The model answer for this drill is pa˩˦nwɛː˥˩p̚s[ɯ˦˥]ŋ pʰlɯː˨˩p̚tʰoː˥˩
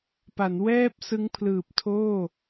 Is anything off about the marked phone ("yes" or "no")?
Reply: no